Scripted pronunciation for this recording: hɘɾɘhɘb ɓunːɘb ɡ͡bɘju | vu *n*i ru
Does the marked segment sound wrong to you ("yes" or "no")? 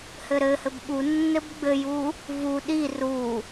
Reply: yes